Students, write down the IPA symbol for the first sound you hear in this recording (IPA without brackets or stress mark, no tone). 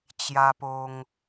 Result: t͡ɕ